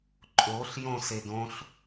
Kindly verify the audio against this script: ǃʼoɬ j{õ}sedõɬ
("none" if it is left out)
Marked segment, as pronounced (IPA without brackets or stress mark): õ